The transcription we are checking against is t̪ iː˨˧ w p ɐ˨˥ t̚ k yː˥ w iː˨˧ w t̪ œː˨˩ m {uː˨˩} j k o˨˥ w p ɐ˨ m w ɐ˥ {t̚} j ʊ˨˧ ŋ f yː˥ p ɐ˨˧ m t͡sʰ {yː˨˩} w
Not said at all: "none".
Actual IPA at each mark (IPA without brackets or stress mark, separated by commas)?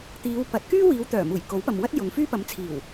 uː˨˩, t̚, iː˨˩